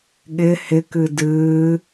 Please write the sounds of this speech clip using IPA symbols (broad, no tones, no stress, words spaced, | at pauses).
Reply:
ɠɪ hɪkɨ dɨː